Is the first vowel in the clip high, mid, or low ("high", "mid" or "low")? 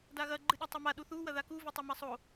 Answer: low